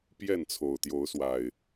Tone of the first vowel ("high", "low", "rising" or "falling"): falling